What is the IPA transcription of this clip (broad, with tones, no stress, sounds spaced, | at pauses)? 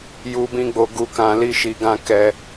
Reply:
j u˨ b ĩ˧ ɡ͡b o˨ ɡ u˨ k ã˨ l i˧ ʃ i˨ ɡ ã˧ k ɛ˧